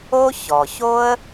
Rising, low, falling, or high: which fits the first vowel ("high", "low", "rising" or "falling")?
high